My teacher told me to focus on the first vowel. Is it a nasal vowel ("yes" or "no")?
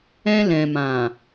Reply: yes